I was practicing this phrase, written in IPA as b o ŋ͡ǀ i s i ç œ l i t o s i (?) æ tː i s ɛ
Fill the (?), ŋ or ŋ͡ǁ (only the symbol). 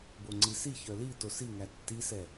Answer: ŋ